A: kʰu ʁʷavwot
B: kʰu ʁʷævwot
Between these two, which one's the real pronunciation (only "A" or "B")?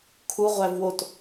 B